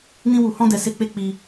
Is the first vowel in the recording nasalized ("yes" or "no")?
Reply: yes